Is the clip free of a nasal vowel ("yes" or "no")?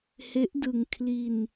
yes